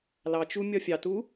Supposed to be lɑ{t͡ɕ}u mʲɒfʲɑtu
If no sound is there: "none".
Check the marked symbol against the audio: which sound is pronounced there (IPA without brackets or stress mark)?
t͡ʃ